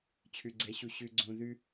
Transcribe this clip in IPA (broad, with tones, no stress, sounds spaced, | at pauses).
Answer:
t͡ɕʰ ʉ˨ ɡ͡ǀ ɛ˨˦ ɕ u˨ ɕ ʉ˨ ɡ͡ǀ õ˨ ð ʉ˦